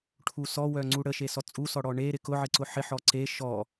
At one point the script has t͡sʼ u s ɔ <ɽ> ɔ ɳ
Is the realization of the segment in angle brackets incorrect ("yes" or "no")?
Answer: no